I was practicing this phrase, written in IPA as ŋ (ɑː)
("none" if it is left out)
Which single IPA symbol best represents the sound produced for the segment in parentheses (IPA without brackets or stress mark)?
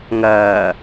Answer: ɐː